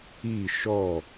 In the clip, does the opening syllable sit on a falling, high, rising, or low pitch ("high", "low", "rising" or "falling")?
falling